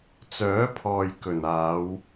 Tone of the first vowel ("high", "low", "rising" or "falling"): rising